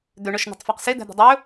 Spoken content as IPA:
d̪ ø ɳ ɔ ʃ n̪ ɔ̤ tˤ f æ q s e d̪ æ̤ d̪ ɔ̤ dˤ ɵ

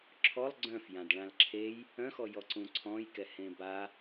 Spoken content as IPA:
ǁʰ ɔ lˠ ɡ͡ǀ œ̃ f j ã d ɭ ã l ǁʰ e j | œ̃ x ɔ j ɔ ǀ ũ ǀʰ ɔ̃ j k ɛ h ẽ b a

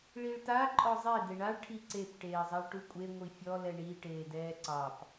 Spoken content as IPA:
ɭ i ɭ t a ǃʼ ɔ zˤ e d e ɳ a ɭ ʈʰ i ǀ e p ʈ eː zˤ a ɭ ʈ u kʷʼ e ŋʷ i fʲ ɔ l ɛ ɳ i ʈ eː d ɛː ǀ ɑ p

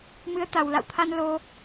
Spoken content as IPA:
m ɨ˨˦ ə̯ t̪ a˨˩ w l a̰˧˨ w t̪ʰ a˧ n l o˧

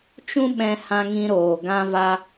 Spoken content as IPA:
t͡ʃ ũ˦ ɓ ɛ̃˧ h ã˧ ŋ ĩ˧ ɾ oː˨ ɡ ã˧ v a˧

